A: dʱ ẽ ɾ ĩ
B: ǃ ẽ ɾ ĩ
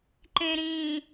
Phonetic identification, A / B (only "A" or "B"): B